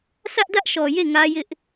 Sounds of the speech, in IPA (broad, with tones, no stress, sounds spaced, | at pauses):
sʰ ä˦ ʔ d ä˦ ʔ ʃ ɔ˨ j e˦˨ ŋ ä˦ j ɪ˦ ʔ